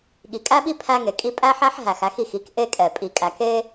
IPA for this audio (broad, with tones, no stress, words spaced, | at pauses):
ɠi˩kʼæ˥ɓi˥ pʰæ˥ŋe˩kʼi˥ pʼæ˥ħæ˥ħ ɦæ˩xæ˥x i˩xi˥k ʔe˥kʼɛ˩ pʼi˩kʼæ˩ke˥